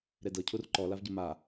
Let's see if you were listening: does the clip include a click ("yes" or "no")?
yes